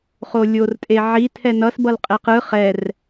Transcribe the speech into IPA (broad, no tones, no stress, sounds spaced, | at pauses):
χ o lʲ o r tʼ e ʕ i tʰ ɛ n ʌ s b ʌ l qʼ e q ɯ χ ɛ r